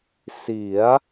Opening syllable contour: rising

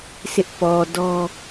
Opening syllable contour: high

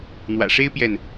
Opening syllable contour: low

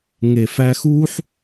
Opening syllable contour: low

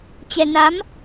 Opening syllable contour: low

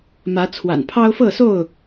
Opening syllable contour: rising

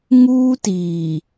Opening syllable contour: high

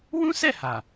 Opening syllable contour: high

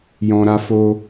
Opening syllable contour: low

